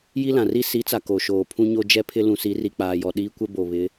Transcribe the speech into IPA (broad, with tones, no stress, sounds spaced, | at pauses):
j i˦ l ã˨ r i˦ s i˨˦ t͡s a˨ k o˨ ʃ oː˨ pʰ ũ˦ ɲ o˦ d͡ʒ ɛ˦ pʰ ɪ˦ l ũ˨ s i˨˦ r i˨ k͡p aː˨ j ɔ˨ ɗ iː˦ kʷ ɛ˦ b o˨ β ɪ˨˦